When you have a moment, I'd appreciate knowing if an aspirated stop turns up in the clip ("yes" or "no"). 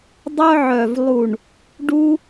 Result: no